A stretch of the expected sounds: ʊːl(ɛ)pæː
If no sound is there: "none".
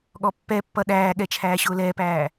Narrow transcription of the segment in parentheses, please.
ɛː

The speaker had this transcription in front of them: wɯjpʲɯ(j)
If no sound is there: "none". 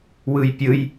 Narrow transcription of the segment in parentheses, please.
j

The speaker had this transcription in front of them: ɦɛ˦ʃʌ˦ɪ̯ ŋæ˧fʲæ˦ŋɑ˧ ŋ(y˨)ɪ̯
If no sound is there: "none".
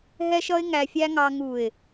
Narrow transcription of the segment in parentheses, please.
u˨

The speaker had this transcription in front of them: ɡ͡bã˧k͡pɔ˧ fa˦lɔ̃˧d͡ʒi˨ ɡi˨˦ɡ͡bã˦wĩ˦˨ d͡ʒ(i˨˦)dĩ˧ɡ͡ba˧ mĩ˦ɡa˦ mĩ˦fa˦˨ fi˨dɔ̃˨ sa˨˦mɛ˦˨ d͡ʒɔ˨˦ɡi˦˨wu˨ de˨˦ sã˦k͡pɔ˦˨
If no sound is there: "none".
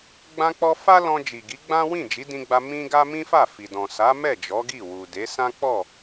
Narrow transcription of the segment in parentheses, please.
i˨˦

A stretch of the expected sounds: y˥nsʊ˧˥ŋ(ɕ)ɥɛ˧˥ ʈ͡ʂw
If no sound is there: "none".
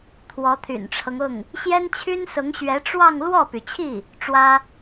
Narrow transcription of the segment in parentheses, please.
ɕ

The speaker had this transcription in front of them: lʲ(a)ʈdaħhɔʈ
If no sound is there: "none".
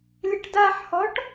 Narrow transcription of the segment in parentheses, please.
ə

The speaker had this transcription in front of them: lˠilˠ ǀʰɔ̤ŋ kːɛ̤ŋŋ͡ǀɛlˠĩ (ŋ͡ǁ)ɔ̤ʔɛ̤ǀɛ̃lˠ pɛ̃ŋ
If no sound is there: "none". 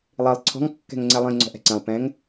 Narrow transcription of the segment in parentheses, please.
ŋ͡ǀ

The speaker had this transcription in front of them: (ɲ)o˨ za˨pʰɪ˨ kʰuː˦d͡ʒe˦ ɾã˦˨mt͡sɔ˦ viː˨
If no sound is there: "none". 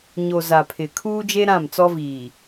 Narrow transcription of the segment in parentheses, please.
ɲ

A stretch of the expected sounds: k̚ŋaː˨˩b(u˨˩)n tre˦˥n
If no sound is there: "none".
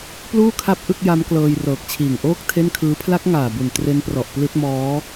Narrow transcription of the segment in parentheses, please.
u˨˩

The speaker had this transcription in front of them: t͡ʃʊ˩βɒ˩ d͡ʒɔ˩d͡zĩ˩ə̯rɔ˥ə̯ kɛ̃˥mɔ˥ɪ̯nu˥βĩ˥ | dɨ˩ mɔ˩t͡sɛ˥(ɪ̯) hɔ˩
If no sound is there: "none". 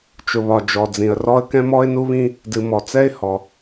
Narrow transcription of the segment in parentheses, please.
ɪ̯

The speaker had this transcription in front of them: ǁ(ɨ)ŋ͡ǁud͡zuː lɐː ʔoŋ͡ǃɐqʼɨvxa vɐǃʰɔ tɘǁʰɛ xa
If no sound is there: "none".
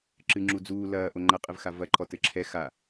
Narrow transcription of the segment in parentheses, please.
ɨ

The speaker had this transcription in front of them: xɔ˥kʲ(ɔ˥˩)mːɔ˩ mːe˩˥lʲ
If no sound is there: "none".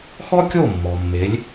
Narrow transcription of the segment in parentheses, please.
o˥˩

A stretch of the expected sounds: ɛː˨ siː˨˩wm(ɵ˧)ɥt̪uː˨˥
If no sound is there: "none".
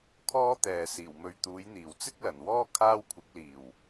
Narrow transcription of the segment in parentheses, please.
ɵ˧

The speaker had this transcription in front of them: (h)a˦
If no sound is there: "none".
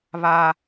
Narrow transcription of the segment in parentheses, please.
β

